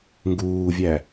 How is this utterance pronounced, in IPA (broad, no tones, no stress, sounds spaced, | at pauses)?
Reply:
ŋ ɡ uː vʲ æ